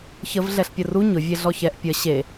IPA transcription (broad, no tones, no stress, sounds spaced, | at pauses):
ç ə v ɮ ɛ ɬ pʲ ə r u ɲ ʊ vʲ e ɮ ɔ ç ɛ ʔ pʲ ə ɕ e